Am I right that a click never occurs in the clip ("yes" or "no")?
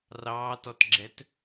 no